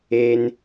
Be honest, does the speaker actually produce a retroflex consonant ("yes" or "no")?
no